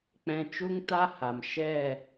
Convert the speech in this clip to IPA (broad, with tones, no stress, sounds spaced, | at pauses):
k͡p ɛ̃˨ t͡ʃ u˦ ŋ t a˦ h a˨ m ʃ ɛ˦˨